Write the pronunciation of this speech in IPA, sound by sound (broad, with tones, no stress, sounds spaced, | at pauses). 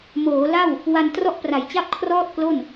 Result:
m oː˩˦ l a˥˩ w | w a˧ n t r ɔ˥˩ ʔ p r a˨˩ j t͡ɕ a˥˩ p̚ kʰ r ɔː˥˩ t̚ k l o˥˩ n